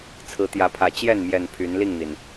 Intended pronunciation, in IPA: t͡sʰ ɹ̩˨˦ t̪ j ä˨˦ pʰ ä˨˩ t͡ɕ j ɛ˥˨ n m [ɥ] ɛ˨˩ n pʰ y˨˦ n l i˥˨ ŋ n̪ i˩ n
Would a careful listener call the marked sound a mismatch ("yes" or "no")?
yes